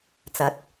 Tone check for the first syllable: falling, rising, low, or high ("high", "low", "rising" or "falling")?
rising